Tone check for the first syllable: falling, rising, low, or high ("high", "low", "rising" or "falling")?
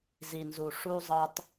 low